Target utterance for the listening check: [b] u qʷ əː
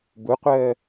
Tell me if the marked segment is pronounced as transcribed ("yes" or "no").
yes